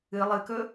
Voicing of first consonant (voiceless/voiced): voiced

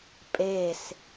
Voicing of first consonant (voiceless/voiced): voiceless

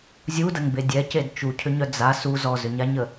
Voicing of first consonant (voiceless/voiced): voiced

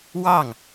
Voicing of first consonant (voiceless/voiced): voiced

